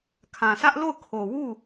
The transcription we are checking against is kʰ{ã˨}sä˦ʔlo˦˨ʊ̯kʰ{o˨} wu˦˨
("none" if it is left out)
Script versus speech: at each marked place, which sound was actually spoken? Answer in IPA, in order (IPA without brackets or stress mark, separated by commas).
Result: ã˨, o˨